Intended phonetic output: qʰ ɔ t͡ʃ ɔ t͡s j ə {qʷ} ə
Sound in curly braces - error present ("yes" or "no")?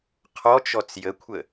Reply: yes